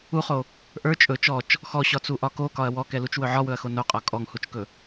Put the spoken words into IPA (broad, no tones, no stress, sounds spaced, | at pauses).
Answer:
u χ o | ʔ ə˞ t͡ʃʼ ɵ t͡ʃ ɔ t͡ʃ | x ɔ ɕ ɒ t͡s u ʔ ɒ k o k ɒ ɐ̯ w ɔ k ɛ l u t͡ʃ w ɵ ʕ ɒ w ɵ ɐ̯ x o n o qʼ ɒ kʼ ɔ ŋ h u t͡ʃ k ɵ